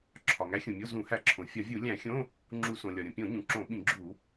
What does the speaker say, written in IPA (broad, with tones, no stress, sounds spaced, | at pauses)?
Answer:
ǁʰ ɒ˩ ŋ æ˨˥ xʲ ũ˩ mʲ o˧˥˧ z ũ˧˩˧ h æ˧˩˧ ǁʰ õ˩ fʲ ɒ˧˩˧ vʲ u˧˩˧ lʲ æ̃˧˩˧ xʲ õ˧˥˧ | ŋ͡ǁ u˧˩˧ s õ˩ lʲ ɒ˩ ɾʲ õ˩ pʲ õ˧˩˧ ɲ ũ˩ ǁ õ˧˩˧ ɓ ĩ˧˩˧ ɡ͡ǁ u˧˩˧